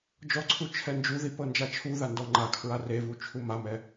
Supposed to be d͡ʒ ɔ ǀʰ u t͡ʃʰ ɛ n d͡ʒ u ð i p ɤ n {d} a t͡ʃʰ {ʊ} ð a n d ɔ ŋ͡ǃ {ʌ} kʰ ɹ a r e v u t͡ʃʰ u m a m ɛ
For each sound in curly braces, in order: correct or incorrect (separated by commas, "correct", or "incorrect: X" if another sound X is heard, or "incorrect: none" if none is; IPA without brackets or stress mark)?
incorrect: d͡ʒ, incorrect: u, incorrect: a